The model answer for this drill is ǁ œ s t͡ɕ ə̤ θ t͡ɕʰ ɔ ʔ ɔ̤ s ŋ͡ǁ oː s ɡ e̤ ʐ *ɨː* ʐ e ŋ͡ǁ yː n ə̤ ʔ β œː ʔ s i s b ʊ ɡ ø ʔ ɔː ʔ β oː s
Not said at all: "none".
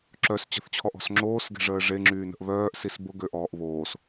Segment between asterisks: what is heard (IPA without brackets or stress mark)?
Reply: əː